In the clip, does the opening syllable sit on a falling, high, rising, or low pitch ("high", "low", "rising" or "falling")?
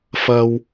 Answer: low